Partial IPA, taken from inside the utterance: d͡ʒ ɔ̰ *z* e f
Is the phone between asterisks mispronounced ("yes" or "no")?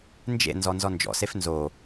yes